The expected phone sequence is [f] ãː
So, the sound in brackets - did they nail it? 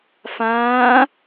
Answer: yes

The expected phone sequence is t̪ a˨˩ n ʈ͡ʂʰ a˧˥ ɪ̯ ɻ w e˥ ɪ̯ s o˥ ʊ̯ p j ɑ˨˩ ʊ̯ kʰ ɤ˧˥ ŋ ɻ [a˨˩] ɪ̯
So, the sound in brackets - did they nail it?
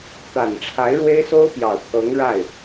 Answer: no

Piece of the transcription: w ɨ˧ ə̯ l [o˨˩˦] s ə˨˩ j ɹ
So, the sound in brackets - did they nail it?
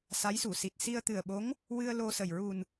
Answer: no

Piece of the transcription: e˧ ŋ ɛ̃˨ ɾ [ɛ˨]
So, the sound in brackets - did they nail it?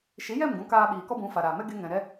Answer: no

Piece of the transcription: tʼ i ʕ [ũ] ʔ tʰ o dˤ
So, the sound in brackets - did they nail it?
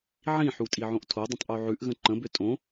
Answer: no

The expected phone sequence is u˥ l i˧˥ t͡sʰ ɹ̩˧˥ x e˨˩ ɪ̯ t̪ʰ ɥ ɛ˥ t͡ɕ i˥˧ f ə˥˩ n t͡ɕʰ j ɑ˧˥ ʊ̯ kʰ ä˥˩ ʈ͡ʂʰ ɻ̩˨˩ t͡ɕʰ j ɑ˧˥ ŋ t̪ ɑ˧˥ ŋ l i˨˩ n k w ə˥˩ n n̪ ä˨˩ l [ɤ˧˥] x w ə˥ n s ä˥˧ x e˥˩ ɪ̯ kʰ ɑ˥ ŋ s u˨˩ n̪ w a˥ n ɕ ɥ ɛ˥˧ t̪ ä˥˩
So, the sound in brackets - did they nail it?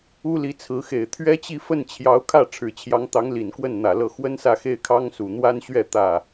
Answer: no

